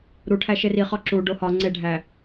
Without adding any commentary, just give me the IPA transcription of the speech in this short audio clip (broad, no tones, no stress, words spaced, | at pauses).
ɾuʈʰæ ʃeriχɒ ǁuɖo hɒ ŋ͡ǀeɖʱæ